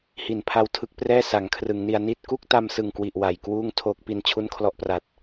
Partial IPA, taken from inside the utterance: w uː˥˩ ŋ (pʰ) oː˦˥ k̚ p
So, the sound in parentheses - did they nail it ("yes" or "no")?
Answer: no